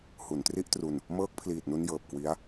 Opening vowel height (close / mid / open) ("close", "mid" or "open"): close